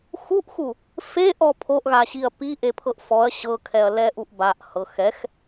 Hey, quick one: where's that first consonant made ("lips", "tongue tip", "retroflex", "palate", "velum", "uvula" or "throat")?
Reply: velum